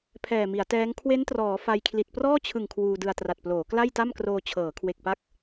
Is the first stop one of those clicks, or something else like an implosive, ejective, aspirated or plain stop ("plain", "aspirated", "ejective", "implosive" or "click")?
aspirated